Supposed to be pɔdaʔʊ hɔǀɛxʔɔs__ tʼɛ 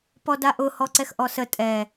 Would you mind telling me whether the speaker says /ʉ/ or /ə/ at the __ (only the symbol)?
ə